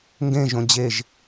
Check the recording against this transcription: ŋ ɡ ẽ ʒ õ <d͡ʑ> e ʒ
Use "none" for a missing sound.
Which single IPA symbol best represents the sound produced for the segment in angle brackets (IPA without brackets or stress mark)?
d͡ʑ